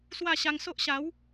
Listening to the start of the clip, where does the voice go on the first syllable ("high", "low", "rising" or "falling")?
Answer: falling